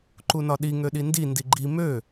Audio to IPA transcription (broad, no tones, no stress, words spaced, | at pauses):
ǃunɒɗi ŋøɗindi ndiɡ͡ǃi mø